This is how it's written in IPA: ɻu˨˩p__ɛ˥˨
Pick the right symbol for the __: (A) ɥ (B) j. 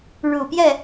B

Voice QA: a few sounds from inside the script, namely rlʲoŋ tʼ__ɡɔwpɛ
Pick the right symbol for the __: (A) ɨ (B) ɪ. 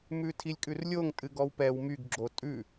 A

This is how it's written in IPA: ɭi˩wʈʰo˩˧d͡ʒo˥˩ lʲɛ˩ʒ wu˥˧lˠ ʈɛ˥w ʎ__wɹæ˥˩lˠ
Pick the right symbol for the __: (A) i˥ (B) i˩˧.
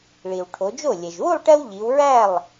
B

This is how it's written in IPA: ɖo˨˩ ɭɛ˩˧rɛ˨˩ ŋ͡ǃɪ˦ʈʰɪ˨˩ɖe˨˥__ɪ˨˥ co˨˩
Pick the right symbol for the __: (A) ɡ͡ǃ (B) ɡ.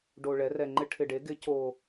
B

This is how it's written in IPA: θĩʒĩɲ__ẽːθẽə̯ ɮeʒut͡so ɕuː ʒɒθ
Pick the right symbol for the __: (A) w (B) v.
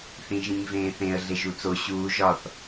B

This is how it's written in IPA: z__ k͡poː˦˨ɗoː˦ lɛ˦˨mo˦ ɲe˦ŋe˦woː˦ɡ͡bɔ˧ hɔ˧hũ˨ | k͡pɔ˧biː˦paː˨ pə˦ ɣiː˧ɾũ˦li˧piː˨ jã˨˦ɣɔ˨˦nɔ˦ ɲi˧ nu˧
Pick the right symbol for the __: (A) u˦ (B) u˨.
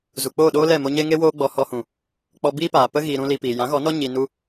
B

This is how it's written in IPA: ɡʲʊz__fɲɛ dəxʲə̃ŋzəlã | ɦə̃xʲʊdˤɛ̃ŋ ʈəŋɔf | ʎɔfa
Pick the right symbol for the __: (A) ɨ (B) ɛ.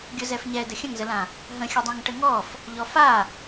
B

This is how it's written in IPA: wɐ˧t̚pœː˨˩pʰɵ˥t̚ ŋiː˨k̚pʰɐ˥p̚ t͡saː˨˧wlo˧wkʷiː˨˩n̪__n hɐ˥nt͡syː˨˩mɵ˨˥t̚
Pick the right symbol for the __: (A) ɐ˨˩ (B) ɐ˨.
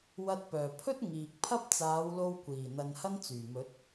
B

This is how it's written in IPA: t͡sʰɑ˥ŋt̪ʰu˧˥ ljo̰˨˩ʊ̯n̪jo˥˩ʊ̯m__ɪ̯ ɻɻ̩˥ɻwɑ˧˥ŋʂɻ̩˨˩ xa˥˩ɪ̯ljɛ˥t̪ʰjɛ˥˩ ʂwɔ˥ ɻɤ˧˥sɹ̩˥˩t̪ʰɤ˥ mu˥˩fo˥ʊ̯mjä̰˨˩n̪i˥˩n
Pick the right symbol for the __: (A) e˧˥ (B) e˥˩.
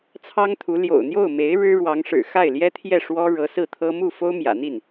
A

